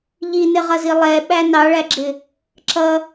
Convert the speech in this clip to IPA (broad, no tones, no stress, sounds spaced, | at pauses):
ʎ i n ɪ ʁ ʌ z i lˠ ɛ ɓ æ n ɑ ɭ æ ɡ͡ǁ ɪ | ǁ ʌ